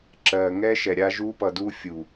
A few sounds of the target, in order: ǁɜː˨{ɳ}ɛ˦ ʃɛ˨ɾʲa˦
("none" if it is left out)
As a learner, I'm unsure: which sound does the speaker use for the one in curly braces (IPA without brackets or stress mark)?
ŋ